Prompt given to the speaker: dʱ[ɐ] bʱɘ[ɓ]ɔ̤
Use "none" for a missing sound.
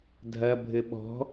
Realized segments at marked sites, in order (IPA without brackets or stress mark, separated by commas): ɐ, ɓ